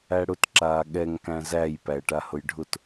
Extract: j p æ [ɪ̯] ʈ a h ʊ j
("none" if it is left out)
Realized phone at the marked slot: ə̯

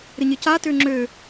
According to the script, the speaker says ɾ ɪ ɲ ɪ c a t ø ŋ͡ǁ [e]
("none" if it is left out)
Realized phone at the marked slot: ø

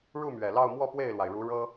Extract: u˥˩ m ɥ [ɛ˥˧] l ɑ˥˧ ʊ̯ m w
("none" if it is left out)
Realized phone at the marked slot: ɛ˨˩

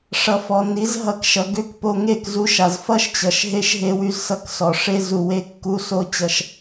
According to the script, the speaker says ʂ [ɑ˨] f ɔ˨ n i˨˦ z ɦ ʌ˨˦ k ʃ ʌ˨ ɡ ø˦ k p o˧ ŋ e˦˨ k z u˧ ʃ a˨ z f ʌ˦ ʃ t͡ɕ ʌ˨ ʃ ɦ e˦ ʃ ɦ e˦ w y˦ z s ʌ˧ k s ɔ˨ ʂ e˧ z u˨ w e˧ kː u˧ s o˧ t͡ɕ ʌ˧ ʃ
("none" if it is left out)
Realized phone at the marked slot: ʌ˨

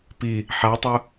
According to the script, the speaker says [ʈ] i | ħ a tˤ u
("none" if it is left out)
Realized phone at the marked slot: p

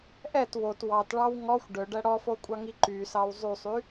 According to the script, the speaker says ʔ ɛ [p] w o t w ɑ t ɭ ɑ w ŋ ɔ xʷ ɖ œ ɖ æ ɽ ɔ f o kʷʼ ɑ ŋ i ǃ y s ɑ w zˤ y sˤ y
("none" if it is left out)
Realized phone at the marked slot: t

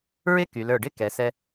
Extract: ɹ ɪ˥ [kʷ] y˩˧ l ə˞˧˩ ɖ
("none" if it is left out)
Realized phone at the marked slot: k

